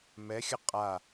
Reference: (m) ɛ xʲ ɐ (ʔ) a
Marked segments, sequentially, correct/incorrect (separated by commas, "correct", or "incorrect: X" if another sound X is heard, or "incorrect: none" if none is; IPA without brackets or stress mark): correct, incorrect: qʼ